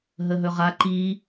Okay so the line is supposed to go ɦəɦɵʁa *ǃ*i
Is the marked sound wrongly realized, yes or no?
no